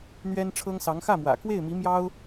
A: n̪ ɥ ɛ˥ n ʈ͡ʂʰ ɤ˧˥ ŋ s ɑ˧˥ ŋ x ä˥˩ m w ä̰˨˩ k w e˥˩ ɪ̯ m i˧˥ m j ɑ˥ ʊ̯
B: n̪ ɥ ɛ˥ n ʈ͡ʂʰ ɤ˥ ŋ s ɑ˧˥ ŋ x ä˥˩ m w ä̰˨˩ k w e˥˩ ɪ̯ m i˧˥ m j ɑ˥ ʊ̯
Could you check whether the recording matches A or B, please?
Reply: B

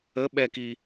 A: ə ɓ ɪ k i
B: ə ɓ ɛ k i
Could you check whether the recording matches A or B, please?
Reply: B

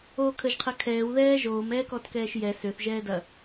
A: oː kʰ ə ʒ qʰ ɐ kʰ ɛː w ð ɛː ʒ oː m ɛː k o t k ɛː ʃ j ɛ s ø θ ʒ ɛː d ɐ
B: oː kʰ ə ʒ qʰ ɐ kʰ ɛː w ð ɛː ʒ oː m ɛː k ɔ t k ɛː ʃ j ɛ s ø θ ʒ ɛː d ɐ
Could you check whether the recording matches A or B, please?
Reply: B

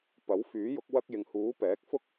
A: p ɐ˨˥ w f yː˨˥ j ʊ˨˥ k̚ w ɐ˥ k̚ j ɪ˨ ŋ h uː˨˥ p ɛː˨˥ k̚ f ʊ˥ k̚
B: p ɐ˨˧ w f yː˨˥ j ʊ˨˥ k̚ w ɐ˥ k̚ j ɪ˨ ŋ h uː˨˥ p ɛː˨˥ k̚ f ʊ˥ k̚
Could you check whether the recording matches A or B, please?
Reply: A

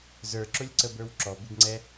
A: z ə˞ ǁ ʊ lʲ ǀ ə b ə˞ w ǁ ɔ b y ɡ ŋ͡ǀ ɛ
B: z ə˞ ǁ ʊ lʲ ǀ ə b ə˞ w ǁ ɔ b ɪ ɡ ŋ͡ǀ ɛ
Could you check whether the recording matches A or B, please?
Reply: B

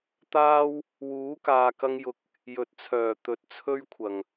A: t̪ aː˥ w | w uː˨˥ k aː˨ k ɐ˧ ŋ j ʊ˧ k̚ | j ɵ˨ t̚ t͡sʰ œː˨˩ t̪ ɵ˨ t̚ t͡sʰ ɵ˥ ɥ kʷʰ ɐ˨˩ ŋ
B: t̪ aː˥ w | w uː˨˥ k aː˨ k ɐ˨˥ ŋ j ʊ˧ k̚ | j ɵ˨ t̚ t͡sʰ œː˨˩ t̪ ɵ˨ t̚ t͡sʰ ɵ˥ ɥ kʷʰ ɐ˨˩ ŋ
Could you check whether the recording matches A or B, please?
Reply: A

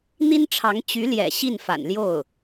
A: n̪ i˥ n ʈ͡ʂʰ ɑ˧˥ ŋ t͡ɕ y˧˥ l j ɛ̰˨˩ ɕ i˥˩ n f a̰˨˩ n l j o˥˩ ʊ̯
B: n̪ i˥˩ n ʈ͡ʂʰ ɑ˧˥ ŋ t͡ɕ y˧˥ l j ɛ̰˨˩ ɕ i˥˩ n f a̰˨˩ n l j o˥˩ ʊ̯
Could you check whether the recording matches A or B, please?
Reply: A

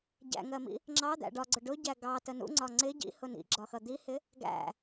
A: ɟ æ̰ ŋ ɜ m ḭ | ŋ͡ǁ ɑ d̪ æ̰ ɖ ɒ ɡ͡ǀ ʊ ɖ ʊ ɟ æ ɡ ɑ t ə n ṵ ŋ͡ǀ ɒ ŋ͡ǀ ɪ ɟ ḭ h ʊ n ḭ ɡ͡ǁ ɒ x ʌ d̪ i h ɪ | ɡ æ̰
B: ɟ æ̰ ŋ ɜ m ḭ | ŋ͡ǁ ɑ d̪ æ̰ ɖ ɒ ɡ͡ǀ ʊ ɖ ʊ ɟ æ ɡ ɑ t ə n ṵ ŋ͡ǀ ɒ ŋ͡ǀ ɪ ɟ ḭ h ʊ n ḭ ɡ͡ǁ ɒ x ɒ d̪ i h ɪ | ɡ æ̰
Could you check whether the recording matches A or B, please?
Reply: A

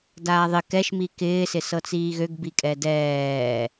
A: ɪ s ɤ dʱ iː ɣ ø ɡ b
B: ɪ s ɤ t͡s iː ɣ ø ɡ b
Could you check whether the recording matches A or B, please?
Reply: B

